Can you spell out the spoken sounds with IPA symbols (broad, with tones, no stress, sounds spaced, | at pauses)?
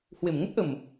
h w e˨˩ m ŋ ə˦˥ t̚ ʔ ə˨˩ m